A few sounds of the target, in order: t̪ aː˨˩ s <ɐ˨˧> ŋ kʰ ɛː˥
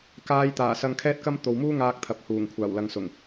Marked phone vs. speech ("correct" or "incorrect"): incorrect